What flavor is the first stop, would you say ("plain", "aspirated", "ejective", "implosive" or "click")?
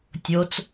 plain